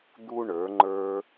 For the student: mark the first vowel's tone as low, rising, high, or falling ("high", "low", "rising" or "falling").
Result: high